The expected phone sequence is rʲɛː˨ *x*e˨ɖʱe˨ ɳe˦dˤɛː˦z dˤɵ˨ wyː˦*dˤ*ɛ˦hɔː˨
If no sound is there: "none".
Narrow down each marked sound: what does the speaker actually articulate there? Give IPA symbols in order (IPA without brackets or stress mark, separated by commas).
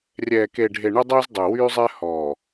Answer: k, zˤ